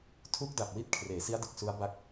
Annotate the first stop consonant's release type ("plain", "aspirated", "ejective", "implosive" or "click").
aspirated